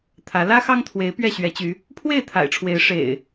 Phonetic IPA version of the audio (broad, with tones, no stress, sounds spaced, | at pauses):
t̪ʰ ä˨˦ l ä˦ x ɑ˦ ŋ t̪ʰ w e˨˦ ɪ̯ p ɥ ɛ˥˨ ɕ ɥ ɛ˨˦ t͡ɕ y˨˦ | pʰ w e˥˨ ɪ̯ t̪ʰ a̰˨˩ ɪ̯ ʈ͡ʂʰ w e˨˦ ɪ̯ ʂ ḛ˨˩ ɪ̯